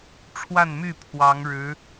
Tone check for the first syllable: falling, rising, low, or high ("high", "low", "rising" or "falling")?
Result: falling